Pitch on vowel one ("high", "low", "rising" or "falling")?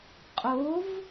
rising